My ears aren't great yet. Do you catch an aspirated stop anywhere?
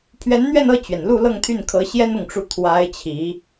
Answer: yes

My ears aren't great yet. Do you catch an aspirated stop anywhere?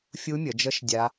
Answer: no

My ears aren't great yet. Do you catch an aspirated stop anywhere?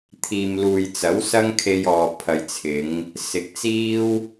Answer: yes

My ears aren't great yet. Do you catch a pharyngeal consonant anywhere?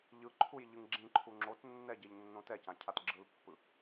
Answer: no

